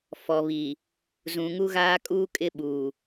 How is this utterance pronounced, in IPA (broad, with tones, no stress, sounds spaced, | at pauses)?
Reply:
f ɔ˨ β i˨ | z ũ˨ ŋ u˦ ɣ aː˦ kʼ uː˦ kʼ ɪ˦ ɓ uː˨